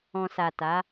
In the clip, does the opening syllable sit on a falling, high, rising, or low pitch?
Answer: low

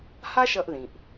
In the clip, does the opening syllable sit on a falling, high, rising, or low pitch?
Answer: high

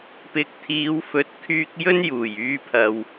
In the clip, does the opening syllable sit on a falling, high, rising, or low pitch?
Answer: low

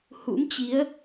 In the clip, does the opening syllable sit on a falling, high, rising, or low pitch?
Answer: rising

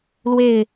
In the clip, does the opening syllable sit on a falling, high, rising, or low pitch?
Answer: falling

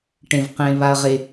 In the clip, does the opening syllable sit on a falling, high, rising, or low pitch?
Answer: low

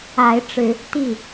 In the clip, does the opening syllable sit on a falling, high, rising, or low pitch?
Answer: rising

